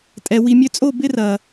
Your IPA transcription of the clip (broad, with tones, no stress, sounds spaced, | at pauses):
tʼ ɛ˨ w i˨ mʲ ø˧ t͡sʼ o˦˨ b ɪ˦ r ɐ˨